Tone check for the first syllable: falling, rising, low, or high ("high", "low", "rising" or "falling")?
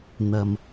low